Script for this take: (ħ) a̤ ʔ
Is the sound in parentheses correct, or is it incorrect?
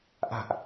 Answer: incorrect